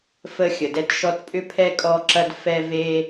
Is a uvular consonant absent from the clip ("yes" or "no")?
yes